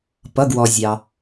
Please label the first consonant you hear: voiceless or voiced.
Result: voiceless